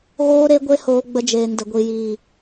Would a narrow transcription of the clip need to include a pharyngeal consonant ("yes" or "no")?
no